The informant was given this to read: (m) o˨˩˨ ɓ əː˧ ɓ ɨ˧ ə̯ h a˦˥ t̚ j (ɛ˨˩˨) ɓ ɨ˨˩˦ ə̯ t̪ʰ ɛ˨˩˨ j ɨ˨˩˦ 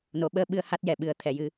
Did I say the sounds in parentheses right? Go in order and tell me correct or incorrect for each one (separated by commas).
incorrect, correct